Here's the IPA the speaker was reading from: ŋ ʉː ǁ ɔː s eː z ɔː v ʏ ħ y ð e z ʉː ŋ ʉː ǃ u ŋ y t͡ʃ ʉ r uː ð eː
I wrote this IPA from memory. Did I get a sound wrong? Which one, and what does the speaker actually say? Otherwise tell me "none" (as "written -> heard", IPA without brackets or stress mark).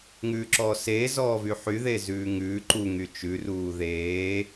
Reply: ʏ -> y